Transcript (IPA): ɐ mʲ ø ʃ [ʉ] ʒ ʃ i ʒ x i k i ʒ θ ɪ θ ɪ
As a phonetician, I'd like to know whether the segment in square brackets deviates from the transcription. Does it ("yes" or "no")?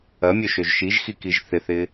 yes